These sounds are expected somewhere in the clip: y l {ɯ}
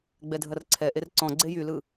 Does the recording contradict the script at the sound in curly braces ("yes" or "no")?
no